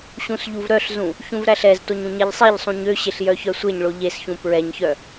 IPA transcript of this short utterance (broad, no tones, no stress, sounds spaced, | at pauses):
ɕ ũ s ʎ u v ɾ œ ɬ z ũ | ç ũ v ɾ æ ɬ ɛ z t o ɲ ũ ɲ ɛ ʎ sˤ e ʎ sˤ ũ ɲ ø ɕ e ɬ j œ ç œ sʷ e ɲ ɭ o ʎ e s ç ũ p ɹ ɛ ɲ ç œ